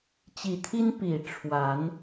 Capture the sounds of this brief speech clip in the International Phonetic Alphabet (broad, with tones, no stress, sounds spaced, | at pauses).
t͡ɕ i˨˩ t̪ʰ i˦ n p i˨˩ ʈ͡ʂʰ w a˨˦ n